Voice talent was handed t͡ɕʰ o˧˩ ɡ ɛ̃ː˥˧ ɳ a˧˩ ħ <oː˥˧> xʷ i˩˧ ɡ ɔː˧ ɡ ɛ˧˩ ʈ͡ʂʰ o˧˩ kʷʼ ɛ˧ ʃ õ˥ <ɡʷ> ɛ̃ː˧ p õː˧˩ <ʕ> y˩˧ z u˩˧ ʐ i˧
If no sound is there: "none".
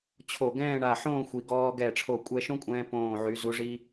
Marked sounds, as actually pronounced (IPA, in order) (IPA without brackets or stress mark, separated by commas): õː˥˧, kʷʼ, ʕ